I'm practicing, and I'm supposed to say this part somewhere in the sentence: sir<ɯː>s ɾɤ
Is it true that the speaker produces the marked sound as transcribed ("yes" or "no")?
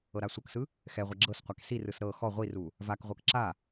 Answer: no